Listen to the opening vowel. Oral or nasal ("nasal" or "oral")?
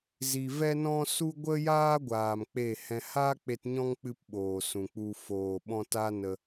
oral